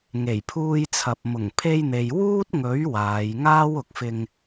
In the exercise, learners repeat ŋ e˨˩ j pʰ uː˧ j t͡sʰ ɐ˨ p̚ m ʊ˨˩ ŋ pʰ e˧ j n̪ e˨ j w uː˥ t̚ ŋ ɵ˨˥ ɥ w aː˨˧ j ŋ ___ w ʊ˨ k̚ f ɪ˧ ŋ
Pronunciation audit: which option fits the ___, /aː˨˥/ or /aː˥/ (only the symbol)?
aː˥